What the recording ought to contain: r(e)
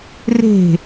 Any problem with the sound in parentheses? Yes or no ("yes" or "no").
yes